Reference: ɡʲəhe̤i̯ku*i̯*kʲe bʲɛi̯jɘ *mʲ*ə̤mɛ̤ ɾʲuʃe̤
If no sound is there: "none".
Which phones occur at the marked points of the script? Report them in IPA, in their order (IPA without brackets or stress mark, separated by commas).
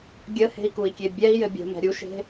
i̯, bʲ